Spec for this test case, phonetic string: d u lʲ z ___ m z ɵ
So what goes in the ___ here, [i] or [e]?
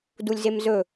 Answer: e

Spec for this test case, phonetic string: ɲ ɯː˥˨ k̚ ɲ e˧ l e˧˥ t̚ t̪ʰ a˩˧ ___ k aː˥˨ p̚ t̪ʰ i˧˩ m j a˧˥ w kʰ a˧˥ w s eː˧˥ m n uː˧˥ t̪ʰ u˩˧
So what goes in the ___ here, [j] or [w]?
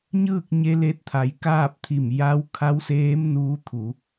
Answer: j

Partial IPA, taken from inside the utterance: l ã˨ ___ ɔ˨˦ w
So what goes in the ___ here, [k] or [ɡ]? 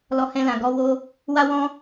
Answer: ɡ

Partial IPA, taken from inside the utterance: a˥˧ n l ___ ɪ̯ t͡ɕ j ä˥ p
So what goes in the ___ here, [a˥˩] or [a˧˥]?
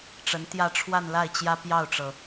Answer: a˥˩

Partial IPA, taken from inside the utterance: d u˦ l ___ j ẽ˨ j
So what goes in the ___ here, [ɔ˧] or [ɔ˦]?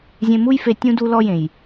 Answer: ɔ˧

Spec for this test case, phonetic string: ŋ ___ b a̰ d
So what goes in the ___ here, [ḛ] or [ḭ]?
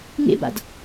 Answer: ḛ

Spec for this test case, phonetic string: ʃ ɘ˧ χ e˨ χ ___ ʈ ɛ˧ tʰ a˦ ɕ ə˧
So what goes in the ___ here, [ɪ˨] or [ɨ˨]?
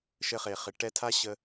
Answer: ɪ˨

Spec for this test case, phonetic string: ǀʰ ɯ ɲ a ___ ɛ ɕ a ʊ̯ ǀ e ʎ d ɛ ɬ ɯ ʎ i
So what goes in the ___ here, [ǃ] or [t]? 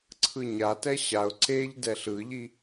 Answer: t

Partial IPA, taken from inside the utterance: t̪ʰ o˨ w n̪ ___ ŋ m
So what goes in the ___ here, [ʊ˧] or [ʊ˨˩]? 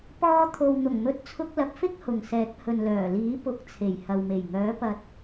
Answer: ʊ˨˩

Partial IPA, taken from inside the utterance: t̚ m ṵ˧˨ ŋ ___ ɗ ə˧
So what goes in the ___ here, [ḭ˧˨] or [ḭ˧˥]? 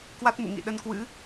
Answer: ḭ˧˨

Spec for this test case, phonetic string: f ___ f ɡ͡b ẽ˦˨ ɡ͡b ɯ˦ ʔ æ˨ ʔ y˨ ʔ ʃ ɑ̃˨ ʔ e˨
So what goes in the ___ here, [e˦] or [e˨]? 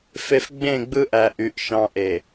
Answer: e˨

